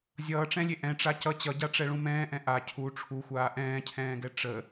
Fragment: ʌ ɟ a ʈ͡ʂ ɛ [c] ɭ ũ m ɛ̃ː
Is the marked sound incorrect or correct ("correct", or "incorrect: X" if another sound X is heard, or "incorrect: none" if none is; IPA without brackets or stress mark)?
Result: incorrect: none